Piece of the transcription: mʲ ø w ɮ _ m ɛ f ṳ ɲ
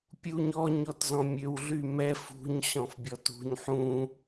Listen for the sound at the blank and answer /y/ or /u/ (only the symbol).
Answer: y